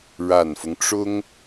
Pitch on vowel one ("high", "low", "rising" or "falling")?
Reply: low